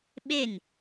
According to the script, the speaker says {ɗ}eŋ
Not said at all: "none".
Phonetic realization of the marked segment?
ɓ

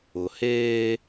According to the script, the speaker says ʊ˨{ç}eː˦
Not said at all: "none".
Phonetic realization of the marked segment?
h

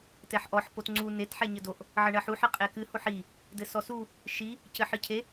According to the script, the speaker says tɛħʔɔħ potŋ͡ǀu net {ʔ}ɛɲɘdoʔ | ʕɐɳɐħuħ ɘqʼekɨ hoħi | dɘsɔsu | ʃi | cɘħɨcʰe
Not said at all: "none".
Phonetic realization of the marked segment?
ħ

